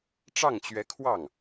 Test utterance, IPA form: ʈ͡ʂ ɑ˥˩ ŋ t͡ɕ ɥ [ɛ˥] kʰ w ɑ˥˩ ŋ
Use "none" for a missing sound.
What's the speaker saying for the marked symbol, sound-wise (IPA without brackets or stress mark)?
ɛ˧˥